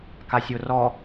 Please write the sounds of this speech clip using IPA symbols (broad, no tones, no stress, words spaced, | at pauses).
kasʲorɔ